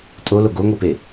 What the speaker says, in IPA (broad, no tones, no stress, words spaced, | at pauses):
tʼolo ɡoŋʷipe